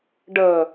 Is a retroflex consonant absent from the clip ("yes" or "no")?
no